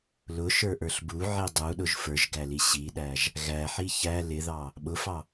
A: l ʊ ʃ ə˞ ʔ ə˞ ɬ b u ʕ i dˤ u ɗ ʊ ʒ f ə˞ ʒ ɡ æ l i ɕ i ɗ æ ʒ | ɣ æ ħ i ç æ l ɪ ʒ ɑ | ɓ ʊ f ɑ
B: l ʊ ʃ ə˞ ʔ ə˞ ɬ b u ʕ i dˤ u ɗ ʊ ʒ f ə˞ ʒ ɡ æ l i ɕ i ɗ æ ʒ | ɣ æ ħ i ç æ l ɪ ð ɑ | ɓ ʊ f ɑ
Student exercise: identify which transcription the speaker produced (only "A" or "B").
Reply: B